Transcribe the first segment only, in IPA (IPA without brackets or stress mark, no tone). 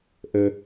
ʔ